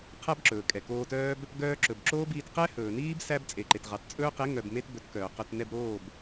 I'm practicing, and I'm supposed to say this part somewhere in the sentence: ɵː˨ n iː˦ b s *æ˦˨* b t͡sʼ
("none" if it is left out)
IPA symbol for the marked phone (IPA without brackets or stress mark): æ˦